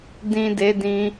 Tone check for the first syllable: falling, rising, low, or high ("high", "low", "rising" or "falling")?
low